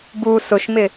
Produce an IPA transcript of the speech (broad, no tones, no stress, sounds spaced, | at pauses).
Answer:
b u s ʊ ʃ m ɪ